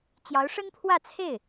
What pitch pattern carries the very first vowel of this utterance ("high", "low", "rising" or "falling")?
rising